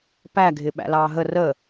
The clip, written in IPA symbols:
p æ ɡʱ ɪ ɓ æ̰ l ɑː ɦ ə r ə

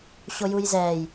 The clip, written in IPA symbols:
ɕ o j u j z ɛː j

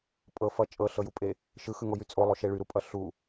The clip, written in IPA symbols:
pʼ ɤ f ʌ t͡ʃʼ ɤ ɬ ɤ j u pʼ e | ʃ ɯ x ɯ ŋ o j y t͡sʼ o lˠ o ʃ e ɭ y ɾ u pʼ ʌ ɬ u

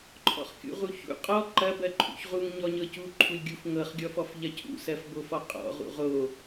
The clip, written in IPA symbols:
ǃʰ ɔ̰ χ kʲ ṵ ʁ u ç ṵ qʼ ɔ ǃ ɐ b ɜ ǃʰ ṵ ç ʁ u ŋ ɲ ɔ ɲ ɤ c u ǃʰ u lʲ ɡʲ u f ŋ ɤ χ ɡʲ ɔ f ɔ f ʎ ɐ cʰ ṵ s ɜ f b o f ɔ qʼ ɔ̰ ʁ ṵ ʁ o

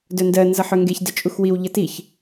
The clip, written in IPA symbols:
d œ n d ɜ n z ʌ ħ œ ŋ ɡ e ç d ə t͡ʃʼ u x w i w ʎ ʌ t i ç

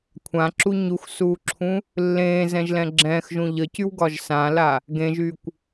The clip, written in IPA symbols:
kʷʰ ã ǁ u ɲ u x s uː ǁʰ ũ | lː ẽː z ɛ̃ ʒ l ɛ̃ ɡ͡ǁ ɛ̃ː x ʒ ũ ʎ ə c y w ɡ ɒ ʒ s ã l a | ɡ ẽ ʒ y kʷ

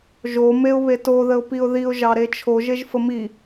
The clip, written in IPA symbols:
ʒ o m e ʊ̯ β e t o ð ə ʊ̯ p i ʊ̯ ð i ʊ̯ ʒ ɑ ɾ e t͡ʃʰ o ʒ e ʒ f ə m i

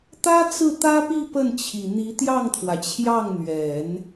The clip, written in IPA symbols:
t̪ ä˥ t͡s ɹ̩˥˩ t̪ ä˥ p i˥˧ p ə˥˩ n t͡ɕʰ i˨˩ n̪ i˧˥ t̪ j ɑ˥˩ ŋ t̪ʰ w ä˩ t͡ɕʰ j ɑ˥˩ ŋ n̪ ɥ ɛ˨˩˦ n

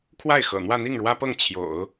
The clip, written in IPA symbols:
kʰ w a˥˩ ɪ̯ x ɤ̰˨˩ n̪ w ä˥˧ n̪ i˥˩ ŋ ɻ w ä˥ p ɤ˥˩ ŋ t͡ɕʰ j o̰˨˩˦ ʊ̯

